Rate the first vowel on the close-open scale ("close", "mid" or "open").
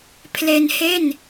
mid